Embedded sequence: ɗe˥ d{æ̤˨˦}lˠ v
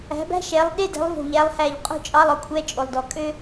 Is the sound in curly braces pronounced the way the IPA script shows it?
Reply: yes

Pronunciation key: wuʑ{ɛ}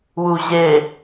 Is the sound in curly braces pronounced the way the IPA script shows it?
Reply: no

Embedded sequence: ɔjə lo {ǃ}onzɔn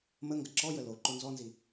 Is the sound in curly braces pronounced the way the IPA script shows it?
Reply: yes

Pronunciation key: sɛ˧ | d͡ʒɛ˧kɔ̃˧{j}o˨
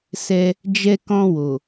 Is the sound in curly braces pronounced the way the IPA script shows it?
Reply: no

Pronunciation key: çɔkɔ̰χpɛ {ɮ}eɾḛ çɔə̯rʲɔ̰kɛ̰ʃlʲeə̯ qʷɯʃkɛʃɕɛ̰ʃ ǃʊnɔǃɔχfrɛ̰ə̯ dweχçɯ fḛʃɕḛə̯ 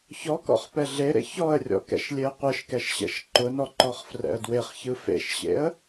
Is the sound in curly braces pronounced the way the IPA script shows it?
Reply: yes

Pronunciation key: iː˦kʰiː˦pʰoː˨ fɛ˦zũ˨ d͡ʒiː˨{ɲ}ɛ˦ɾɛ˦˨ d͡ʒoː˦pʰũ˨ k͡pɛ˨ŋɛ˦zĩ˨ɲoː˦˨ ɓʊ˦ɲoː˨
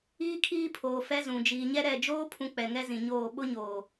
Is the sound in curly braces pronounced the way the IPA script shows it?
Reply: yes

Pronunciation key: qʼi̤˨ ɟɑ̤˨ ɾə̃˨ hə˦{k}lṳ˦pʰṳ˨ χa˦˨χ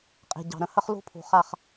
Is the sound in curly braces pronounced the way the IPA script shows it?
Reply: no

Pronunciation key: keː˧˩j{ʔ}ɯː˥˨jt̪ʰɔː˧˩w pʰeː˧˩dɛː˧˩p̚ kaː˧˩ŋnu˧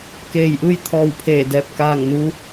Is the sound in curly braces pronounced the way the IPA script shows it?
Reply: yes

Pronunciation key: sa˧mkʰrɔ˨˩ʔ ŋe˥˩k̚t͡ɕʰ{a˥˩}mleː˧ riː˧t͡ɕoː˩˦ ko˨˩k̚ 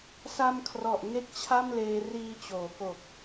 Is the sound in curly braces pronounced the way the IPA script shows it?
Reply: yes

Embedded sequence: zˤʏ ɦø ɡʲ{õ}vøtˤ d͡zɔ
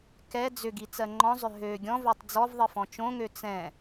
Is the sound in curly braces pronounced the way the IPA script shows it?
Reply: no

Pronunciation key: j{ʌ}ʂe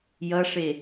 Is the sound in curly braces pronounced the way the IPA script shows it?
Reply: yes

